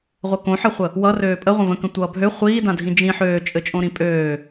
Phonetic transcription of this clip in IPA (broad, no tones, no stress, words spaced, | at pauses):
ʁʷɘkõħɘχʷə | wʌ røːpʼə ʁʷə̃və̃kə̃ tʷʌːbʱø χʷiːdãdʱĩ d͡ʒĩ ħøːt͡ʃʼɘ t͡ʃʼõɾĩpʼøː